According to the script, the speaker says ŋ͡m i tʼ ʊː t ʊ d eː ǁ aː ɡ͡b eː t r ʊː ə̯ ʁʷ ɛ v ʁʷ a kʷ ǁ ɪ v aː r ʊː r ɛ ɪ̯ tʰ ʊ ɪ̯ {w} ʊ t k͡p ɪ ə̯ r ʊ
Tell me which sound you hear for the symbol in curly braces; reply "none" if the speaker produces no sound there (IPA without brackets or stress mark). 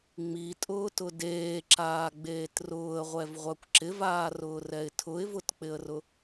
v